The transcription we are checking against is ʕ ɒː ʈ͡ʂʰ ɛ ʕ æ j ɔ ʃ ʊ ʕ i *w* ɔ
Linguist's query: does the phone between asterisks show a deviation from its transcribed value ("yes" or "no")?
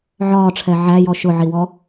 no